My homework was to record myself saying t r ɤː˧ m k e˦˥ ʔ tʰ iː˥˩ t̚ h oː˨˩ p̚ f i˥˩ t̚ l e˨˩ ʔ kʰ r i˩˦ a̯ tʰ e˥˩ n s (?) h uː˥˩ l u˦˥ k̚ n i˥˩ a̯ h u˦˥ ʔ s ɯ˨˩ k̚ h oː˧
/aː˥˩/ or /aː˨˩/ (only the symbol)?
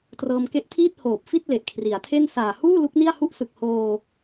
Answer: aː˨˩